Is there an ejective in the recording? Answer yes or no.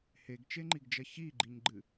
no